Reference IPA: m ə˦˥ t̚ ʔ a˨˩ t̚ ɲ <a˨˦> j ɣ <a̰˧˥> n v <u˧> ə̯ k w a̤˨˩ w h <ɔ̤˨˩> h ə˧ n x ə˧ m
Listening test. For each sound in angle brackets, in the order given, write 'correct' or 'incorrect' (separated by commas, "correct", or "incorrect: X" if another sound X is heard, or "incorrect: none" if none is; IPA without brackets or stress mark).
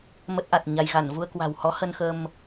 incorrect: a˧, incorrect: a˧˩, correct, incorrect: ɔ˨˦